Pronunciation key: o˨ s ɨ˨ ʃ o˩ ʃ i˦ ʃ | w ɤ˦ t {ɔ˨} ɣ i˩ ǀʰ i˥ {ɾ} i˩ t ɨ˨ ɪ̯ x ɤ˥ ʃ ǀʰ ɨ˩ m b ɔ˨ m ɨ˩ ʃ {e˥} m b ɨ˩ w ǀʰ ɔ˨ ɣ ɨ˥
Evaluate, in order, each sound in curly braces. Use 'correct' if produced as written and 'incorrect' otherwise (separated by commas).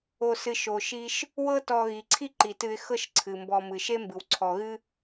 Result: correct, incorrect, correct